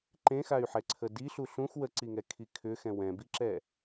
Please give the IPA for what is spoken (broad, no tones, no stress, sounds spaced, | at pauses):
ǃ ẽ x a y̯ ħ ɛ ǀʰ ə d i ɬ u ɬ ũ x w ə ǀ i ŋ ɛ kʰ i kʰ ʏ x ɛ̃ w ɛ̃ b i ǁ ɛ